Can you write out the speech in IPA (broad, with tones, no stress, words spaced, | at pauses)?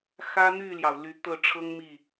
xä˥ n̪y˥˩ljɑ˩ʊ̯ ly˧˥t̪ɤ˥˩ʈ͡ʂʰɤ˥ŋ mi˥˩